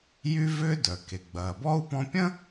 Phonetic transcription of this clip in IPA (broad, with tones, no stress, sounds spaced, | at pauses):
j y˦ v ʏː˦ d œ˩ k e˩ ɡ͡b ɐː˩ b ɔ˥ u̯ p ɔ̃˦ pʲ ə̃˥